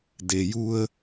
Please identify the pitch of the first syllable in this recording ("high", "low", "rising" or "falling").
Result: low